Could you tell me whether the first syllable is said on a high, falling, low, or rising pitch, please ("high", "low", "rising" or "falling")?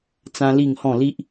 high